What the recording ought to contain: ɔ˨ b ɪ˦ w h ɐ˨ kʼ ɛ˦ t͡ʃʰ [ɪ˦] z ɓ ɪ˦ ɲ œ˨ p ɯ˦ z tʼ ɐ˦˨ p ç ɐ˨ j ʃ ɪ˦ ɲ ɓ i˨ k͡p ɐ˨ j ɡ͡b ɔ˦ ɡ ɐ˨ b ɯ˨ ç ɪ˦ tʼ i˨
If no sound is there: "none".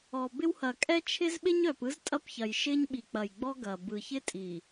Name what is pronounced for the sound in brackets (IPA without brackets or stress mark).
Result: ɪ˦